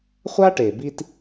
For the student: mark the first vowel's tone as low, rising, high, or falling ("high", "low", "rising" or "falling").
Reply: high